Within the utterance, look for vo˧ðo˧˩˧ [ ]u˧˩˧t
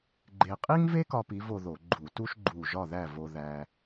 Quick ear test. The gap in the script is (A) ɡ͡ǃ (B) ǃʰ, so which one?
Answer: A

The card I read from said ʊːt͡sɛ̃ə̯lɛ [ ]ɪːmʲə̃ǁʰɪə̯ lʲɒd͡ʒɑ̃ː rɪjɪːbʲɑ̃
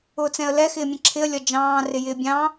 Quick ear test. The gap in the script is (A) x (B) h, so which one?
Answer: A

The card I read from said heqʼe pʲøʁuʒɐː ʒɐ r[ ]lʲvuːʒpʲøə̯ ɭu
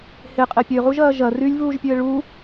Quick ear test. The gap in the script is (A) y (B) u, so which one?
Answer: A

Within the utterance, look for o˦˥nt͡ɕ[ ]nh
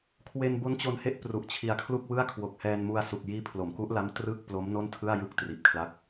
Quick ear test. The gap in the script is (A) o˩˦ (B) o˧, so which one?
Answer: B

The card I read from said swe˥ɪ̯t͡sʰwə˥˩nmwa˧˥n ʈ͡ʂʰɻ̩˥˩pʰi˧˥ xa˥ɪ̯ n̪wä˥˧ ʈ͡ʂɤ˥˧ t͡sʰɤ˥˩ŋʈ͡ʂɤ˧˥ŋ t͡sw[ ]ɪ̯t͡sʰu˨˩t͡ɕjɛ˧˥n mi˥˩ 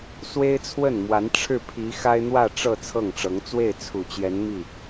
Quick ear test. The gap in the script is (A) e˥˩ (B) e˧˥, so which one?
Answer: A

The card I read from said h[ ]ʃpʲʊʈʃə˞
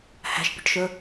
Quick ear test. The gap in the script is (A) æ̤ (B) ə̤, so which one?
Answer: A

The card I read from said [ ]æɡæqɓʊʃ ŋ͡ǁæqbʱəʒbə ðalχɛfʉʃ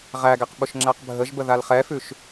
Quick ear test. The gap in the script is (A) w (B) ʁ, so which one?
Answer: B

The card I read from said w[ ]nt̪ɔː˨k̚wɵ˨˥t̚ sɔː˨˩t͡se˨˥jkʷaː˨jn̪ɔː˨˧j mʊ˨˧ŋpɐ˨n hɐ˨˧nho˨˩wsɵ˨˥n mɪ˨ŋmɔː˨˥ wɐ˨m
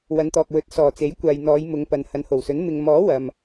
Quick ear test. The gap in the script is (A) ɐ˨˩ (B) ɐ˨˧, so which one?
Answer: B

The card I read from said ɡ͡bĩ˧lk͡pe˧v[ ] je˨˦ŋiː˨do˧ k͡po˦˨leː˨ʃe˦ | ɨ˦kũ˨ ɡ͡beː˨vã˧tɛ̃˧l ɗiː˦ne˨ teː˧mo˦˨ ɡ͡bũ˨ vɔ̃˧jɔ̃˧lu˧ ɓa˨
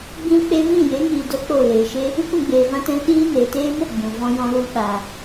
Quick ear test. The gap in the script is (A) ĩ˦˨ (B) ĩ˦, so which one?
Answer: A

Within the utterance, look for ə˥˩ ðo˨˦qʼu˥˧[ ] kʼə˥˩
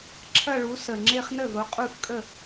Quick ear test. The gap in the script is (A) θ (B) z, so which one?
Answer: A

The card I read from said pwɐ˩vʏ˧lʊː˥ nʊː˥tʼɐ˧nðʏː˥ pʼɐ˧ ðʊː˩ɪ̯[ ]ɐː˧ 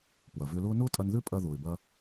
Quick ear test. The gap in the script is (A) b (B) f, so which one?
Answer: A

